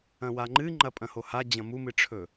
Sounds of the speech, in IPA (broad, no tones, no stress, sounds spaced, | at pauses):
ɐ̃ w a ŋ͡ǃ ɨ ŋ͡ǃ ɐ pʼ ɐ̃ h o h a d͡ʑ ɐ̃ m u m ɨ ʈ͡ʂʰ ɵ